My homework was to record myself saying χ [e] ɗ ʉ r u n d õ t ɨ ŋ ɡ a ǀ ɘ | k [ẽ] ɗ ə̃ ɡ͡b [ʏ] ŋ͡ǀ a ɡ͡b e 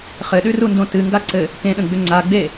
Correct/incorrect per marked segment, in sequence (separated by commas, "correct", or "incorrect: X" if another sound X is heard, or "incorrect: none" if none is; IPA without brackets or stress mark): incorrect: ɘ, correct, correct